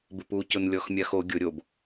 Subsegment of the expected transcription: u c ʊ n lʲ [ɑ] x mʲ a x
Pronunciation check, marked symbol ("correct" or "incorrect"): incorrect